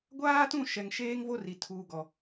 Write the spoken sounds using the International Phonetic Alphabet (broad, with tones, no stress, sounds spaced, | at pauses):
ɡʷ aː˦ t ũ˦˨ ʃ ɛ˨ ŋ ʃ eː˦ ŋ v o˦ r i˨ tʰ uː˨ ɡ ɔ˨